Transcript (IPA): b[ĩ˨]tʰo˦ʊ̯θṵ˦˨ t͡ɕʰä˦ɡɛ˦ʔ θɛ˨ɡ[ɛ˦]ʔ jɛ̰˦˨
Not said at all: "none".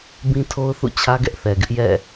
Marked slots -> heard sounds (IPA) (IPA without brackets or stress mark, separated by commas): ĩ˦, ɪ˦